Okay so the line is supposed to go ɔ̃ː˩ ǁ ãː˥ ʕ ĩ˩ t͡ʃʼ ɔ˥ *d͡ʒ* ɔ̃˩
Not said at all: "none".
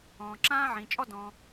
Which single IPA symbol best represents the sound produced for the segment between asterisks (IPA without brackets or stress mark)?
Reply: d